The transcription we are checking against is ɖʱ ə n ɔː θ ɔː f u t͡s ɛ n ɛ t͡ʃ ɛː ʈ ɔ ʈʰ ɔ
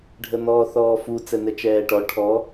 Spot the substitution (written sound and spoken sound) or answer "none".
none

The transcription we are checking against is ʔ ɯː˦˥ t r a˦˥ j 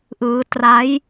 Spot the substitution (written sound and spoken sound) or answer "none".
none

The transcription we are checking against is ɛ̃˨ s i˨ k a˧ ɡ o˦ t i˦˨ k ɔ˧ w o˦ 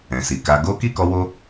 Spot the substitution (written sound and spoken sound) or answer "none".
t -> k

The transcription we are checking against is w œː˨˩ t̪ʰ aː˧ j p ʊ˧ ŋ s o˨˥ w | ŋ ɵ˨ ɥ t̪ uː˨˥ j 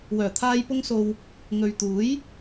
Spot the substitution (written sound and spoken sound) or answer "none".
o˨˥ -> o˨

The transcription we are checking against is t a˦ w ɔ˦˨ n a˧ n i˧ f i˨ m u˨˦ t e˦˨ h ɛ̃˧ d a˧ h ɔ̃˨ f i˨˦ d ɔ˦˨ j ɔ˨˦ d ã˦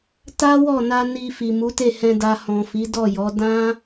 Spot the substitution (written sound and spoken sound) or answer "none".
none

